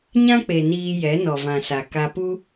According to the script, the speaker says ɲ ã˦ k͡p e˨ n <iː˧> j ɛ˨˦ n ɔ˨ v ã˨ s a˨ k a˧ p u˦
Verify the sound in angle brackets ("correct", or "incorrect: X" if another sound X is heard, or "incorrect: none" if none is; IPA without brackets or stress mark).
correct